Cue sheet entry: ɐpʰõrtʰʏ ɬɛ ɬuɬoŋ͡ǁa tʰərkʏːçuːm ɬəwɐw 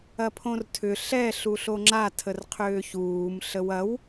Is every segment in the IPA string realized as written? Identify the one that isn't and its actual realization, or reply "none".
k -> qʰ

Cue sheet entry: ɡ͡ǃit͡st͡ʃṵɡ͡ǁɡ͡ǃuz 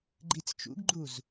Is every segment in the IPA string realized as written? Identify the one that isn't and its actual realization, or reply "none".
ɡ͡ǁ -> ɡ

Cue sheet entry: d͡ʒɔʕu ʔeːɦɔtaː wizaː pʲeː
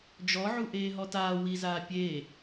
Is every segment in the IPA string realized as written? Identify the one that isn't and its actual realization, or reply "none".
none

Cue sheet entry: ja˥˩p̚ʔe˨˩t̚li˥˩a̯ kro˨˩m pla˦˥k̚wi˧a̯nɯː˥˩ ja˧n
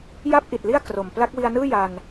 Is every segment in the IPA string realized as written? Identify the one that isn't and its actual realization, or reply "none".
e˨˩ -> i˨˩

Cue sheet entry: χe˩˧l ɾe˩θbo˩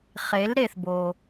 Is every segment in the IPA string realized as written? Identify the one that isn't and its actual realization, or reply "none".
none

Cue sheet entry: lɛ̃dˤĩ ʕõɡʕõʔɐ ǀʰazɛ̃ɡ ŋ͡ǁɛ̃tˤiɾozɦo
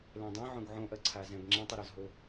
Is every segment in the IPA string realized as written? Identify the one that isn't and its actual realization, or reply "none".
none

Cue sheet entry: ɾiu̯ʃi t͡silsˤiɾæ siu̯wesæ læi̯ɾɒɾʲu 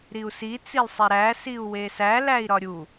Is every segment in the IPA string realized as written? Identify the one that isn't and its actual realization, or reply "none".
ʃ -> s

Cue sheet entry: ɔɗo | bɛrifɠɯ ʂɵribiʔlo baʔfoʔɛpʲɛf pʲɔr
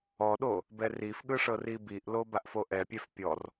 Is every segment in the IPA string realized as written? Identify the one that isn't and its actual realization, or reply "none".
ɵ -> ɤ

